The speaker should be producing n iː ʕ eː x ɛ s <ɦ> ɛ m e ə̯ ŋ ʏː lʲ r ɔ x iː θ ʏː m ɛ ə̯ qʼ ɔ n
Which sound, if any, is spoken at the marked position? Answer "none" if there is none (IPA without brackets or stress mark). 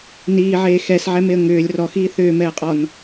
ʕ